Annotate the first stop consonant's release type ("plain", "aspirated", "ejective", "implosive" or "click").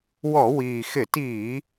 plain